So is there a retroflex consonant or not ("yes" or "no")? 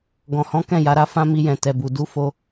no